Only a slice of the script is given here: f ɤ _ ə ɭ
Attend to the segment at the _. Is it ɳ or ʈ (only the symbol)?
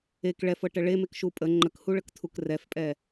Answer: ʈ